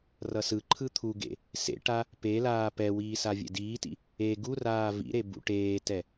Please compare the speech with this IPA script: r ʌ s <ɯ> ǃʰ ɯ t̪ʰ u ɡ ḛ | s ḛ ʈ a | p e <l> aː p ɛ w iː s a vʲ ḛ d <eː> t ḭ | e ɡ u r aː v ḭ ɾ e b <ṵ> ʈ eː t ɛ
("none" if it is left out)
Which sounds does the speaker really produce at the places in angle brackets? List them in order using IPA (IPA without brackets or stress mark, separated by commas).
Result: ɯ, l, iː, ṵ